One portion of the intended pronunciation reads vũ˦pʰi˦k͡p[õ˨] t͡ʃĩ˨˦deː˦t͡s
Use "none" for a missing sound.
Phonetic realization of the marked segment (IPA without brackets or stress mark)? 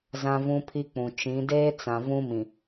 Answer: ũ˨